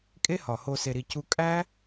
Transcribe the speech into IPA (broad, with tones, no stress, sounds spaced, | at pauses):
kʼ e˦ h ɒ˨ h o˧ s e˧ ɾ i˧ c u˦ kʼ æ˦